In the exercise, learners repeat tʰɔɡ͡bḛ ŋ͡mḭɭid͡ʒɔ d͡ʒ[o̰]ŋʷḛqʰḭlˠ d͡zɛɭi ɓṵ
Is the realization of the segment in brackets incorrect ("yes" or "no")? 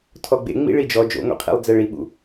no